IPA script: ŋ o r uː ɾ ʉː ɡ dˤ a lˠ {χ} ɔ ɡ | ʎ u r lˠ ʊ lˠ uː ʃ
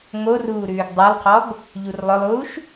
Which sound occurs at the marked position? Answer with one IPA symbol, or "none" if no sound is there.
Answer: qʰ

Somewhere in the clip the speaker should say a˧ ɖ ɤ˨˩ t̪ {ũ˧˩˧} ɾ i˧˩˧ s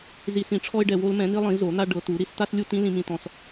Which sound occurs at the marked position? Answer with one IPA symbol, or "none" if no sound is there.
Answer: u˧˩˧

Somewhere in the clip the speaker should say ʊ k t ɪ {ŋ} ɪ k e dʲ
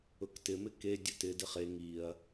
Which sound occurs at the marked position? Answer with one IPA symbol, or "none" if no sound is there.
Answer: m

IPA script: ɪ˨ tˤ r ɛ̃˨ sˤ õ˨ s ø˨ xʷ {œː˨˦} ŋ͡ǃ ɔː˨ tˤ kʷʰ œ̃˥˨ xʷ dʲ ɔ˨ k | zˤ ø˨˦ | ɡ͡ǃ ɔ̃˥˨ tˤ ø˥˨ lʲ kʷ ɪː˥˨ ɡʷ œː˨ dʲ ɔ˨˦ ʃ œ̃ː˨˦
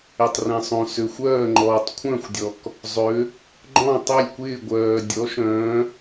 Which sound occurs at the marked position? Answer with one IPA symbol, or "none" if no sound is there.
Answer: œː˥˨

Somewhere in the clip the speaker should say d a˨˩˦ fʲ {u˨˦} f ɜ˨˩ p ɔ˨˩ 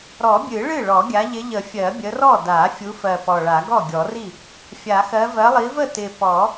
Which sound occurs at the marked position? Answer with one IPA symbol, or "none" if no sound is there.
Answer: u˨˦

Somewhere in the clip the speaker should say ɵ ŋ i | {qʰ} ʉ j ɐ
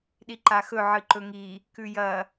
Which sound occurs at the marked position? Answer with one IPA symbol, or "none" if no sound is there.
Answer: k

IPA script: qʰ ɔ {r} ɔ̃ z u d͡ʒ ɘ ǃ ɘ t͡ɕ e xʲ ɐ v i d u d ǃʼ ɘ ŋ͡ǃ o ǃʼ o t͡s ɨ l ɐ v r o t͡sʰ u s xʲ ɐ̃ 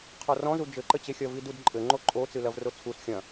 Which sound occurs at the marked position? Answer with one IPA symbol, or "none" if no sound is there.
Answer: r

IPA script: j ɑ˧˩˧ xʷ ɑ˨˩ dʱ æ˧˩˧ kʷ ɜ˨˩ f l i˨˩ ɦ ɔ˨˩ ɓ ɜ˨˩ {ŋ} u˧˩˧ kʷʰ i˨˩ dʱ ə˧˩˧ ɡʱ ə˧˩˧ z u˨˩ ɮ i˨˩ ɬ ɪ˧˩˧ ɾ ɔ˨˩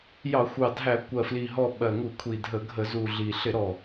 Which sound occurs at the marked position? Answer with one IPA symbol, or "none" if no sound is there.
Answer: ŋ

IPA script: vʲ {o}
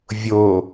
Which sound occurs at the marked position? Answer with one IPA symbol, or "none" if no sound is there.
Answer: o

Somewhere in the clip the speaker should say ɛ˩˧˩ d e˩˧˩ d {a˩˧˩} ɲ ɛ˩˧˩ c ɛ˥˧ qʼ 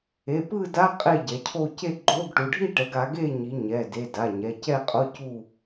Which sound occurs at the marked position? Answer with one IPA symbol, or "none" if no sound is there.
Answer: a˩˧˩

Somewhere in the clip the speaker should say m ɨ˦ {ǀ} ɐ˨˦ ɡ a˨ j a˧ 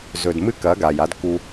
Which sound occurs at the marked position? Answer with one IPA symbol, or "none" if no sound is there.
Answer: k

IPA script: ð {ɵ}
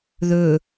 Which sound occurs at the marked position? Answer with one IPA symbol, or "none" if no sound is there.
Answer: ɵ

